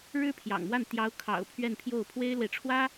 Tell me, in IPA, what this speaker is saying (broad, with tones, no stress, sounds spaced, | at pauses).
ɻ ɻ̩˥ pʰ j ɑ̰˨˩ ŋ m w a˥˩ n t̪ j ɑ˧˥ ʊ̯ kʰ ɑ̰˨˩ ʊ̯ pʰ ɥ ɛ˥˧ n pʰ j o˥˩ ʊ̯ pʰ w e˥ ɪ̯ l w e˨ ɪ̯ ʈ͡ʂʰ w ä˥